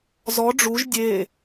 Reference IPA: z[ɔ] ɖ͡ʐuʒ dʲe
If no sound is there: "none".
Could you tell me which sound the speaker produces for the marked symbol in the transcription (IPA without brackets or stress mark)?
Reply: ɔ